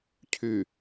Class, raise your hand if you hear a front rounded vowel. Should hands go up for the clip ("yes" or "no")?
yes